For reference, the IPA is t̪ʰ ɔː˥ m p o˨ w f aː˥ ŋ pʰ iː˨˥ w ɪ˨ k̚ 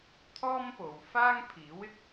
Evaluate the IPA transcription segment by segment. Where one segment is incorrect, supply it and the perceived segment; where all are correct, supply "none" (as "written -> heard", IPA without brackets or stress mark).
none